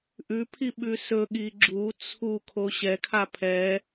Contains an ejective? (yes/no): no